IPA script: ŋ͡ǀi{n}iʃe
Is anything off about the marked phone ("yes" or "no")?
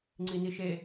no